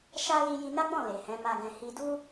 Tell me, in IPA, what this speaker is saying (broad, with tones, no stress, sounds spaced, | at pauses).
ʃ a˦ l i˧ j i˧ n a˦ ɡ͡b ɔ̃˦˨ l e˨ h ɛ̃˨˦ m a˦ ɡ ɛ̃˦ h i˧ d u˦